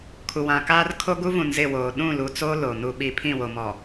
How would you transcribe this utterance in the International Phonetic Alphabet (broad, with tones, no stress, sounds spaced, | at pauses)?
kʰ u˨ w ã˨ k aː˦ r kʰ o˦ ɡ u˦ v ũ˨ n z ɪ˦˨ w oː˨ ɗ ũ˦˨ l u˨ t͡s o˦ l o˨ n u˨ ɓ i˨ pʰ ĩ˦˨ w o˨ m ɔ˨